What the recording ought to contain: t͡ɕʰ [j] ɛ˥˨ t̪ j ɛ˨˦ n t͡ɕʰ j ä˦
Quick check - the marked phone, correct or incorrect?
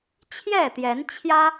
correct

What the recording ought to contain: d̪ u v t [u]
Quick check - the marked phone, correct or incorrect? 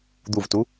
correct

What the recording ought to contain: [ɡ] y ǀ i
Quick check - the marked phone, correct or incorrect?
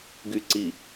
correct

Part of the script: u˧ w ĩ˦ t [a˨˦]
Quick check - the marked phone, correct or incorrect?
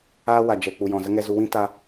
incorrect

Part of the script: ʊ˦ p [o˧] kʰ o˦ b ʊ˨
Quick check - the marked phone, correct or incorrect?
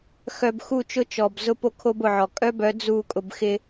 incorrect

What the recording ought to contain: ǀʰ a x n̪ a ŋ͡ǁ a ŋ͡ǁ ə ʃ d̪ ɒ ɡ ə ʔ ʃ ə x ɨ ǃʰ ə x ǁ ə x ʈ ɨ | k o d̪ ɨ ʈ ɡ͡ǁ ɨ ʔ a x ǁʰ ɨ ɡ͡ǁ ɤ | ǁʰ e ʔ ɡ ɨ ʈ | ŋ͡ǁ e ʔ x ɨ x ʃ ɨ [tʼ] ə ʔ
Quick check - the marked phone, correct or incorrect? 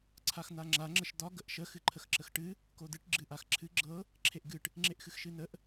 incorrect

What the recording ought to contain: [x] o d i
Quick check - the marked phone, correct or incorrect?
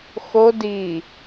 correct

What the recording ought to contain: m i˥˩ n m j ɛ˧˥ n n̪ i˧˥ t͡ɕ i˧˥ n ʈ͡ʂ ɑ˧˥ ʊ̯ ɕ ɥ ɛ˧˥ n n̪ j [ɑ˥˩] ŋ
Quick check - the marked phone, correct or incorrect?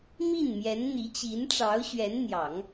incorrect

